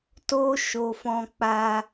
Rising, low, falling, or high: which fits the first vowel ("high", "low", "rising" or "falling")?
high